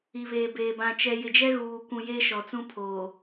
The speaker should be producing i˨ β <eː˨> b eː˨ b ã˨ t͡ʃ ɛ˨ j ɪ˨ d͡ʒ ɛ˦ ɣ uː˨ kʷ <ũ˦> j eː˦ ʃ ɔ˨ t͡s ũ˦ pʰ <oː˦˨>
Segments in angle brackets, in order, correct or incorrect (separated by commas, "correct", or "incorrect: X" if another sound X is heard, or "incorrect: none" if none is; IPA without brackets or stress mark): correct, incorrect: ũ˨, incorrect: oː˨